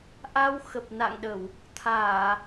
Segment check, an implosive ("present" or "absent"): present